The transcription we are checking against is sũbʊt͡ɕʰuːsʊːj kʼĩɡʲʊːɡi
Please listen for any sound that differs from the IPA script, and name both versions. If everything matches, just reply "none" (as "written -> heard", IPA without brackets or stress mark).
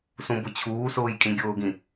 i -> ĩ